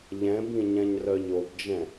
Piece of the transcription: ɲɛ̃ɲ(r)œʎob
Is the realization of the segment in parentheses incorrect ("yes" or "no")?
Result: no